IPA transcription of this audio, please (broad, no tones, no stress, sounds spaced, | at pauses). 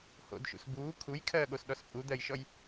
h o̰ d ʃ ṵ s b uː kʰ u j kʰ ɜː ɠ o s ɗ ɔ s pʼ u d̪ ɜ j ʃ ɔ j